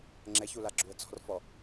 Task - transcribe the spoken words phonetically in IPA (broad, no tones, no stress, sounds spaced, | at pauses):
ŋ͡ǁ ɛ ç u l a ɡ͡ǁ u ə̯ t͡s ɔ̤ r f ɔ